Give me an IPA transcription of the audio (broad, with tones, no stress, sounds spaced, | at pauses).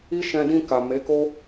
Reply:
i˦ ʃ ɛ̃˧ d ĩ˧ k a˨ m e˨˦ k o˦